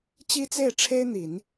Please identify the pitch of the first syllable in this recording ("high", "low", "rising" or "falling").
high